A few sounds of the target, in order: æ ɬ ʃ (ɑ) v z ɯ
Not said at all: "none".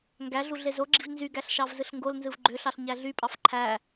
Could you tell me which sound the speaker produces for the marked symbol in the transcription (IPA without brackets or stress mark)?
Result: ɑ